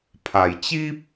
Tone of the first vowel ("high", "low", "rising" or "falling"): low